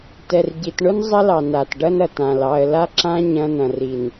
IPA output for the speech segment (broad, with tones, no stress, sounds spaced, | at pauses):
t ɛ˨ r ɟ i˨ t ɳ ʊ˦ n zˤ ɐ˦ l ɑ˨ n a˨ t ɖ ɐ˦ n ɐ˨ t ã˨ l ɑ˨ ə̯ l a˦ ǁ ã˦ ɲ ɐ̃˦ n ɐ̃˨ r i˨ n